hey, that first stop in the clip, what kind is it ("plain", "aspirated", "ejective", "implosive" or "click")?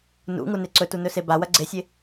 click